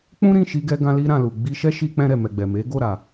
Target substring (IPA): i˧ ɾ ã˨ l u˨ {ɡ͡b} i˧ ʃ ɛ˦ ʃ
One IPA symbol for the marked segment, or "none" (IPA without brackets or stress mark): ɡ͡b